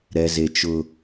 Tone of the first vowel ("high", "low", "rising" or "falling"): low